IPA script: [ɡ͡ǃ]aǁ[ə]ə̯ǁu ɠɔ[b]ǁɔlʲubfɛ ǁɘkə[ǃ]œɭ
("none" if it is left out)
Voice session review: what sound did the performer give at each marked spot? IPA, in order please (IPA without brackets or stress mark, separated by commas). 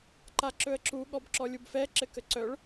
ǃ, ɵ, b, ǀ